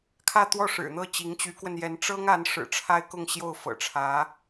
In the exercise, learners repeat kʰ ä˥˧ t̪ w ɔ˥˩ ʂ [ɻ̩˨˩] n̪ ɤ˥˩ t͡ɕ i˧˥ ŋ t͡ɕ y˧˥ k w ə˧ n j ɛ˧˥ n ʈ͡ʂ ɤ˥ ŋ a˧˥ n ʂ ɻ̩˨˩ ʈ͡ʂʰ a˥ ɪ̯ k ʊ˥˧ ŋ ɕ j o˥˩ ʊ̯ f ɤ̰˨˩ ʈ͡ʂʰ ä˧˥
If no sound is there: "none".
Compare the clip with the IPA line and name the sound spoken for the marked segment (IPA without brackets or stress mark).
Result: ɻ̩˨˩